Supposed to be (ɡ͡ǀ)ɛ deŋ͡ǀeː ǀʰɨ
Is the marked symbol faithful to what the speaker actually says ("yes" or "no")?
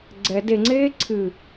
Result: yes